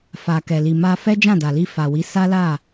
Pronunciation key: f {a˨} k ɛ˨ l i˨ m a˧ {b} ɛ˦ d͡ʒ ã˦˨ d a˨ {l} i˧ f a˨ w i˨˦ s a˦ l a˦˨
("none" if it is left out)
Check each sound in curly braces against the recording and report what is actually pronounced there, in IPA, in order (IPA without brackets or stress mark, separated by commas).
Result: a˨, f, l